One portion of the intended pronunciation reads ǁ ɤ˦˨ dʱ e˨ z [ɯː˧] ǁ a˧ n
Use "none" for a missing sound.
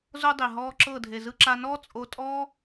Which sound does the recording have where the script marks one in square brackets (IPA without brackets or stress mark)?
ɯ˧